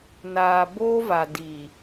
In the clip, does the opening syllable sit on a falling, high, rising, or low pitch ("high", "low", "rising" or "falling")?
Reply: low